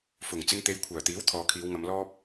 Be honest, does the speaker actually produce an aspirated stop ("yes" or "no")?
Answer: yes